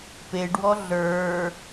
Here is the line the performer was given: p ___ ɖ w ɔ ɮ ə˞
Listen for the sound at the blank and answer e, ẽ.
e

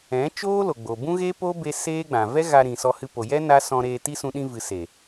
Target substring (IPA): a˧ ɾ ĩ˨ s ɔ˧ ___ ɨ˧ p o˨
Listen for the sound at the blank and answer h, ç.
h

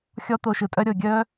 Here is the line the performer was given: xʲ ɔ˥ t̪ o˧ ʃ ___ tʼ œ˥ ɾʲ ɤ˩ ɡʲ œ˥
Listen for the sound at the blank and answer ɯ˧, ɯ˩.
ɯ˩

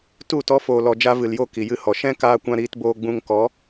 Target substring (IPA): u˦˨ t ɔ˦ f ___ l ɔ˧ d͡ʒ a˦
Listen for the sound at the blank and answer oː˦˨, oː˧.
oː˧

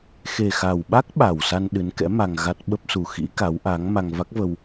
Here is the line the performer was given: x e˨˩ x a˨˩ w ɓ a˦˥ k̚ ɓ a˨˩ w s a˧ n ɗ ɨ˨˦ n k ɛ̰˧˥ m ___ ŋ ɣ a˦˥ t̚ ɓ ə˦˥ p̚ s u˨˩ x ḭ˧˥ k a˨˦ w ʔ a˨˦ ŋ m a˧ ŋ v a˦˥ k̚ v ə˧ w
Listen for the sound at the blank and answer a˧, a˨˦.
a˧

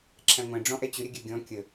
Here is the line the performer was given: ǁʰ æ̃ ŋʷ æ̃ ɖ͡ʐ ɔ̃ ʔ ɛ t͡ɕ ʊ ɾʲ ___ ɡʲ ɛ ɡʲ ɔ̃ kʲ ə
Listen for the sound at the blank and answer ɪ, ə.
ə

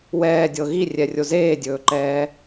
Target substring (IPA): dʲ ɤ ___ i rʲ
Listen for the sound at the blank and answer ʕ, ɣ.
ɣ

